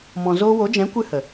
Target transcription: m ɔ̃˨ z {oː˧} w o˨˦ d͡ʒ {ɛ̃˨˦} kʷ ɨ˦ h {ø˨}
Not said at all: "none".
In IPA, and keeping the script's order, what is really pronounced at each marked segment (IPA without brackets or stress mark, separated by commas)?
oː˧, ɛ̃˨˦, ə˨